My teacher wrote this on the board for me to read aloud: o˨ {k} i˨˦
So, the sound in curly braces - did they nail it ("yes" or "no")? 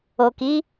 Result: yes